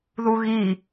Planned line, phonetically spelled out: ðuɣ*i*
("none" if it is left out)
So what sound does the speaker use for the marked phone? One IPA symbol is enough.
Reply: i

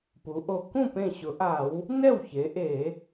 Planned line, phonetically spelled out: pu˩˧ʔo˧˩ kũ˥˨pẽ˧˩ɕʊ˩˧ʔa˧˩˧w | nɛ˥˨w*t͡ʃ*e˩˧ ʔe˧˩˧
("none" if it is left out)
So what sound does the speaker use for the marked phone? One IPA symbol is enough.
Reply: ç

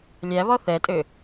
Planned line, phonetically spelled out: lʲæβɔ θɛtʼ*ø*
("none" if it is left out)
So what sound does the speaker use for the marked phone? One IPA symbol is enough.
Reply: ø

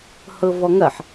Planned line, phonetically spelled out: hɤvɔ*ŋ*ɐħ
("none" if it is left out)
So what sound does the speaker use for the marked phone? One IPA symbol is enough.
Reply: ŋ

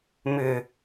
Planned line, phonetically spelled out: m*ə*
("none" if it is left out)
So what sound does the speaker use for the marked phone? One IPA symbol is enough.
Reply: ʏ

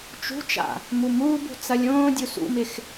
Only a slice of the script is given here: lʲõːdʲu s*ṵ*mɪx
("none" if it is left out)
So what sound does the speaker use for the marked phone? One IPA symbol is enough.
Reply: ṵ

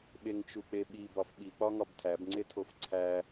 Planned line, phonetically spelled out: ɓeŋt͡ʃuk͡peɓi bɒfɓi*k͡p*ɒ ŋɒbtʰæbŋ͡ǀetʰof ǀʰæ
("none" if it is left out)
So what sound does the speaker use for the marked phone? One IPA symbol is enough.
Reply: k͡p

